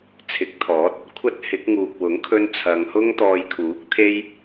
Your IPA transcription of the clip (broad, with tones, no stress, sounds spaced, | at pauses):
t͡sʰ ɪ˨˥ k̚ t̪ʰ ɔː˨˥ t̚ | kʷʰ ɐ˥ t̚ h ɪ˨˥ k̚ ŋ uː˨ k̚ w ʊ˨˥ ŋ kʰ ɵ˧ n t͡sʰ ɐ˨˧ ŋ h ʊ˥ ŋ t̪ ɔː˧ j kʰ uː˨˥ k̚ t̪ʰ e˥ j